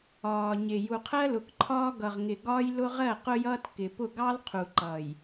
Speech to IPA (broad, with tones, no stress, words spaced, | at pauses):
ɒː˨ɲɪ˨ ju˨qʰɜ˦lʊ˨kǃʰɒː˦ ɡʌ˨ʁŋɪ˨ ɡɒː˦jlʊ˦ʁɜ˦˨ qʊ˦jʌː˦t kɪ˨pʊ˦˨ ɡɑ˦l qʰu˨ǃʌː˨j